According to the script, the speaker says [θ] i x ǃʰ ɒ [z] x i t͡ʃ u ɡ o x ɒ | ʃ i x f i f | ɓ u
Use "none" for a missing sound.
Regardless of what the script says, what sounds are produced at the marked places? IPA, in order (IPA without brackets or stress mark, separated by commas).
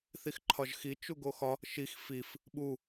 θ, ʒ